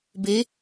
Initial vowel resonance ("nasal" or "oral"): oral